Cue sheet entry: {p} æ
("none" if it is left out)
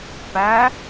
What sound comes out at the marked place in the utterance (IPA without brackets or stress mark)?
p